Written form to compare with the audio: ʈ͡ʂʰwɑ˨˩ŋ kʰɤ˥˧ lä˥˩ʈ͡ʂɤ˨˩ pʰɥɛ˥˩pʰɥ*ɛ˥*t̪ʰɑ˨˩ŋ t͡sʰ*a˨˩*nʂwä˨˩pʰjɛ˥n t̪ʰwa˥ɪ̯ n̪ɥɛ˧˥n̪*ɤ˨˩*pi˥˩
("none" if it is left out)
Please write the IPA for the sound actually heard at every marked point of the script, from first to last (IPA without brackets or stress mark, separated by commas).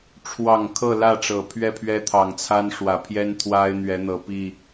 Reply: ɛ˥, a˥, ɤ˨˩